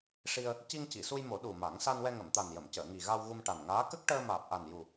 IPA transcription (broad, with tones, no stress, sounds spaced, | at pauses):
ʂ i˧ ə̯ | c i˧ ŋ c i˨˩˨ s u˧ j m o˨˩˦ ɗ u˨˩ m a˨˩˦ ŋ s a˧ n w ɛ˧ ŋ ə˨˩˨ m t̪ a˨˩ n j ə˨˩˨ m c əː˨˩˨ ŋ i˨˩ ɣ a˧ w ɣ u˧ m ʈ a˨˩ n ŋ aː˧˥ k ə˦˥ k̚ ʈ əː˧ m aː˨˩ p̚ ʔ a˨˩ n j u˨˩